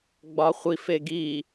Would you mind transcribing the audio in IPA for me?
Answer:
ɡ͡bɒχʷif eɡi

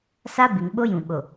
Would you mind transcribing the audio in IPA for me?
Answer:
sa˦bɪ˨ŋ ɓo˦jũ˨ ɓo˨

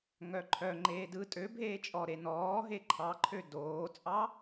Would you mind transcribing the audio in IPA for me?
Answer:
ŋœǃʰœŋ͡ǃeː dɯ tʼø bʱeːt͡ʃʼɔɾe nɔː ɦeǃʰɑǃʰø doːt͡sʼɑ

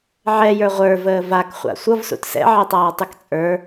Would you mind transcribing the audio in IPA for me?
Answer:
ʕɛjə˞ ʁʷə˞vəː vakχʷa̰ sʷʌvsṵt sɛ̰ʕɛtˤaːtˤʉk t͡sʼə˞

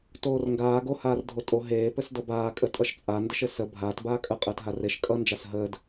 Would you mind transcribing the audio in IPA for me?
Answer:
toːrŋɡaː ɡo haːrdʱotʼo ɦeː pɘsdʌbaː kʼətʼʌʃt͡sʼa ndɘʃɘsə bʱaːt baːkʼə qʼəːtɦareʃ kʼʌ nd͡ʒasɦəːd

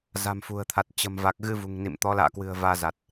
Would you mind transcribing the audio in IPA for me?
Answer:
za̤˨˩mfṳ˨˩ə̯t̪ʰa˨˩t̚ t͡ɕə̤˨˩m va˨˩k̚ɣɨ˧ vṳ˨˩ŋnḭ˧˨mt̪ɔ˨˦ la̰ː˧˨kwɨ̤˨˩ə̯ vaː˧za˨˩t̚

